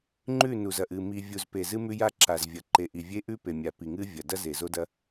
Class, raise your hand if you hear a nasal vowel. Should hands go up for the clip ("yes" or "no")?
no